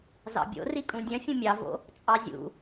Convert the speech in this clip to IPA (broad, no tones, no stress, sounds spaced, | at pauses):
z ɑ̰ bʲ o̰ r i kʼ ũ dʲ œ̃ fʲ ũ mʲ ɑ v o̰ | t͡sʼ ɑ zʲ ṵ